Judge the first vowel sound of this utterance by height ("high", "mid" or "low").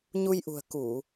high